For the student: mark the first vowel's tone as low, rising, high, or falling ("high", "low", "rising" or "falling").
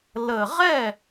low